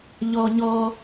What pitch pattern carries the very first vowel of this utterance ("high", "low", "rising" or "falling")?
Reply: high